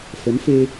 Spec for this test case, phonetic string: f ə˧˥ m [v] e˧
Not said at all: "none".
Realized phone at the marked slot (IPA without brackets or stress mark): f